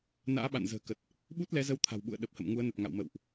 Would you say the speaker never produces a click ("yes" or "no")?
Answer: yes